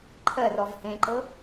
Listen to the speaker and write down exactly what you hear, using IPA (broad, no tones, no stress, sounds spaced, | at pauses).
ǃʰ ɜ r ɔ v h ẽ ǃ ɤ